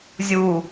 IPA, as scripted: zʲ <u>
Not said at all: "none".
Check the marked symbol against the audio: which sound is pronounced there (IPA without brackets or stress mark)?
u